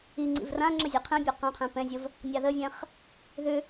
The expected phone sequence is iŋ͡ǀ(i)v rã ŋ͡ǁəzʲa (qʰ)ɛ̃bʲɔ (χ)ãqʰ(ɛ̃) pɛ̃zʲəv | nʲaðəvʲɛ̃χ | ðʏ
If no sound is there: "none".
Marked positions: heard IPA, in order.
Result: ḭ, qʰ, q, ɛ̃

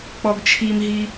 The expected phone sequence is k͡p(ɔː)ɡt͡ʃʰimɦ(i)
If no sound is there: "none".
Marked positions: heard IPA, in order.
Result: ɔ, i

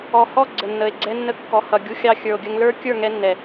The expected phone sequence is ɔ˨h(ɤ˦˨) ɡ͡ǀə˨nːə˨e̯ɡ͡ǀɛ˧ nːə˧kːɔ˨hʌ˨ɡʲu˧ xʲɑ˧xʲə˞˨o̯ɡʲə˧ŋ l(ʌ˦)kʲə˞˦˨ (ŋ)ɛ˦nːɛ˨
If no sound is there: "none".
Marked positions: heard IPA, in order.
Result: ɔ˦˨, ə˞˦, ŋ

